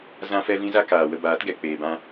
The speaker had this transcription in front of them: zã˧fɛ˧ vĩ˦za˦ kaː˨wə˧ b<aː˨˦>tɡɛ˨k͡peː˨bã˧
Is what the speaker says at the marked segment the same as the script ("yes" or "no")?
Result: yes